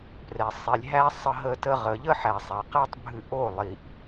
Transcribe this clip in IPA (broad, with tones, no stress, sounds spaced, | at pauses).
p r ɛ˨ sˤ i˨ lʲ ɦ æ˦ sˤ ə˧ ɦ ə˧ t ə˧ ʁ ə˨ ʎ ə˦ ħ æ˨ sˤ æ˨ q æ˦ tˤ bʱ ɨ˧ ʔ o˦˨ lˠ i˨ ʔ